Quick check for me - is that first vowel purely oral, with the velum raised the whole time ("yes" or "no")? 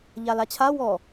yes